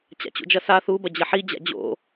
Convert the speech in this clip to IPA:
t͡ɕ a̰ t͡ɕ ṵ d͡ʒ ɐ s a θ u b ɐ d͡ʑ ɐ ħ i d͡ʑ a̰ d͡ʑ o̰

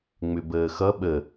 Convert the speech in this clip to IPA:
ŋ͡m ʏ b əː x ʌ ɓ ə

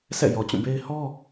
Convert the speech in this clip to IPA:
sʰ ɛ̰˦˨ j ɔ˨ t͡ɕ ũ˦˨ b e˦ ɪ̯ h ɔ˦

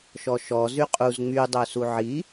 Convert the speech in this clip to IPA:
ʃ ɔ ʃ ɔ z y qʼ u z ŋ͡m y dˤ ø s u ʕ i

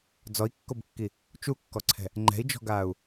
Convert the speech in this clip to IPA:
d͡z ɔ i̯ kː o b kː i | t͡ʃ u kː ɔ ǀʰ ɛ̤ | ŋ͡ǃ ɛ̤ i̯ d͡ʒ ɔ̤ ɡ aː u̯

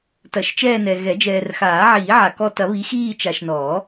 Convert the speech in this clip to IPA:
t ɐ˨˩˦ ʃ t͡ʃ ɛː˦˨ n ɛ˨ ɣ ɛ˨˩˦ d͡ʒ ɛː˨ r x aː˨˩˦ ʕ iː˨˩˦ ʕ a˨ k ɔ˦˨ t ɐ˨˩˦ β i˨˥ x iː˦˨ t͡ʃ a˨ ʃ n ɔː˨˩˦

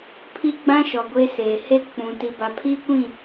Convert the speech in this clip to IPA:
pʰ i˦ ɡ͡b ã˦ ʃ ɔ˨ ɡʷ e˦ s eː˨ h e˦ k͡p ũ˨ t i˨ b a˨ pʰ iː˦ kʷ ĩ˦˨

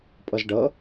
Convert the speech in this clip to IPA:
pʼ ʌ z ɖ ʌ

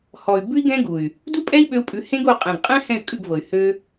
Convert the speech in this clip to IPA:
h ɔ˨ y̯ b ʉ˦ i̯ ɡ ɛ̃˦ ɡ u˨ y̯ | d u˦ pʼ ɛ˦ i̯ ɓ ø˧ u̯ pʼ ʉ˨˦ h ẽ˦ ɡ o˧ qʼ ɛ̃˨ ɡ qʼ ɛ̃˦ h ɛ̃˦˨ y̯ kʼ ʉ˦˨ ɡ v ɤ˨ y̯ h ø˧

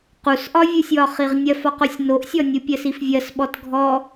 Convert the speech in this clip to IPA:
q u s ʔ ɒ vʲ u sʲ w ɒ χ i ʁ nʲ ɜ f ɒ q o sʲ n o ʔ sʲ ɔ nʲ u pʲ ɜ s i f vʲ ɜ s ɓ ɔ t ɡʱ ɔ

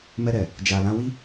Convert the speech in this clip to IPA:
m ɛ˧ ɾ ɛ˨ | d͡ʒ a˨ l ã˧ w i˦

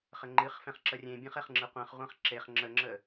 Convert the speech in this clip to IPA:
χ ə ŋ͡ǃ ɨ χ f ɛ̃ χ ǁ ə rʲ ẽ bʲ ɛ̃ χ ɛ χ ŋ͡ǁ ɨ qʷ ɛ̃ χ ʁʷ ɛ̃ χ ǁ e χ ŋ͡ǁ ə ŋ͡ǁ ə

